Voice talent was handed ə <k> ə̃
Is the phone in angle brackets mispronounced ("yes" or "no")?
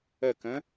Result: no